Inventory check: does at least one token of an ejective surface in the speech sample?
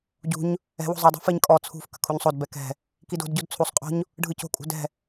yes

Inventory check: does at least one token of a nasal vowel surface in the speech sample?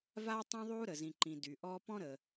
yes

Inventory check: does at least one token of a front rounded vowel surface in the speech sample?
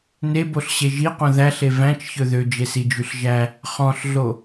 yes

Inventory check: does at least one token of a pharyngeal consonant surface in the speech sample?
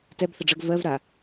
no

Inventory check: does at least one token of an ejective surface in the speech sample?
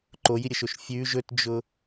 no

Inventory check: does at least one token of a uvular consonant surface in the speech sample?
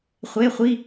yes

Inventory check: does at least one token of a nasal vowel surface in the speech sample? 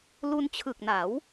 no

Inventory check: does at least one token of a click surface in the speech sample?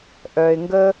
no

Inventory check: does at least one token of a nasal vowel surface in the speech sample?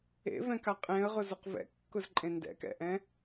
yes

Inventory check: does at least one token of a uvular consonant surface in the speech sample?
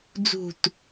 no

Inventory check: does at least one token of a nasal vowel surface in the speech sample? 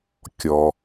no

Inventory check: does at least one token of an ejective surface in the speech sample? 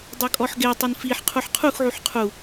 yes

